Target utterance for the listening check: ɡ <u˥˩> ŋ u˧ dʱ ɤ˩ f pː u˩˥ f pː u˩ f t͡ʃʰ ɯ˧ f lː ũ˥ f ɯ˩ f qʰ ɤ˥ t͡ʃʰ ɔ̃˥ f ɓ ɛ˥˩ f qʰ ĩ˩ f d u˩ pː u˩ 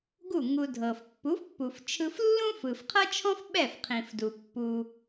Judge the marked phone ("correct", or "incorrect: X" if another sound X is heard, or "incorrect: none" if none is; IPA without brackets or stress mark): correct